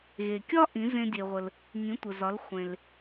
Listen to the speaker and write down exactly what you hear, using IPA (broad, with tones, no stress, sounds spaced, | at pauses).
ɣ e˩ kʲ ɒ˥ ʔ ĩ˩˥ z ẽ˧ dʲ e˩ ʁʷ ə˩ l | ŋ ĩ˩˥ tʷ ə˩ z ɒ˩˥ l χʷ ẽ˩ l